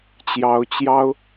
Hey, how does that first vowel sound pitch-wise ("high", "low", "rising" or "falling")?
rising